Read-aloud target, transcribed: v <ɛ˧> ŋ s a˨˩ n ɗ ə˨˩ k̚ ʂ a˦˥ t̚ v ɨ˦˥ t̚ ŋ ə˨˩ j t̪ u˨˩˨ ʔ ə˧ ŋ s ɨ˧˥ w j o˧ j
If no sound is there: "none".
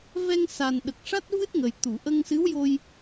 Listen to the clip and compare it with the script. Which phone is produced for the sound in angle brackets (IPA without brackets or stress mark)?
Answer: ɛ˧